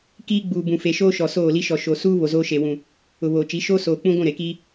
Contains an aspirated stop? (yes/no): no